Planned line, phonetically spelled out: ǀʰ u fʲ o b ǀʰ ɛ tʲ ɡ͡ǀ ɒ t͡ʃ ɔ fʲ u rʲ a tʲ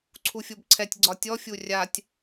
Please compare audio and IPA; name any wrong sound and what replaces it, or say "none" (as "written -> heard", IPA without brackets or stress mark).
t͡ʃ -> tʲ